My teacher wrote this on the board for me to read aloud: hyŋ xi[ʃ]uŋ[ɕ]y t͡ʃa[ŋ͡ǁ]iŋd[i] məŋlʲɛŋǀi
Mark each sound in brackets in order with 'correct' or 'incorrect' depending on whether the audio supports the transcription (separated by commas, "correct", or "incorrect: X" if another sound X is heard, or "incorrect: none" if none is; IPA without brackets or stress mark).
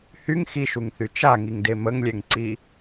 correct, incorrect: θ, incorrect: ŋ, incorrect: e